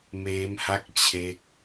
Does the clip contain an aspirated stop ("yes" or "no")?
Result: yes